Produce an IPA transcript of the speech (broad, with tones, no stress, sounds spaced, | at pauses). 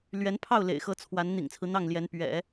l ɥ ɛ˧˥ n pʰ ɑ˥˩ ʊ̯ l ḛ˨˩ ɪ̯ x ɤ˧˥ t͡sʰ w a˧˥ n n̪ ḭ˨˩ ŋ t͡sʰ ɹ̩˦ n̪ ɑ˥˩ ŋ l j ɛ˧˥ n p ɥ ɛ̰˨˩˦